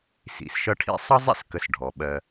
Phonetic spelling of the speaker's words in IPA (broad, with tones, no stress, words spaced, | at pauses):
sḭ˨sʃʌ˦ʈʰḭ˥ sˤʌ˥zˤḭ˥skə˨sɖʱɔ˩ ɓɜ˨